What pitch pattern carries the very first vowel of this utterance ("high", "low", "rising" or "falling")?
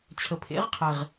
rising